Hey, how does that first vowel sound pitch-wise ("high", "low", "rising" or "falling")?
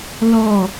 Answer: falling